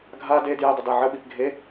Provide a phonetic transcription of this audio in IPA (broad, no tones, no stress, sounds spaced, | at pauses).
ɡʱ a d e d j e dˤ ə d a ʕ ə ɓ i p ɡʱ e